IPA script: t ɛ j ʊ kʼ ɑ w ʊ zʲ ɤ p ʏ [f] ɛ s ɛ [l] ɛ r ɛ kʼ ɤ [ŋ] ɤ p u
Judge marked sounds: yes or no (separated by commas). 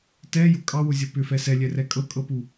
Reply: yes, no, no